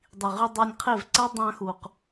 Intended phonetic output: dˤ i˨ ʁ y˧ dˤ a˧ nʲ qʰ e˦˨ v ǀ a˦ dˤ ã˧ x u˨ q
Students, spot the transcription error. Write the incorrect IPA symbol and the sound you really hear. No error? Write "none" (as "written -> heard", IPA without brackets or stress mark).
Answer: none